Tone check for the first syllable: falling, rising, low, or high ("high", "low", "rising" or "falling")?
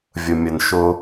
low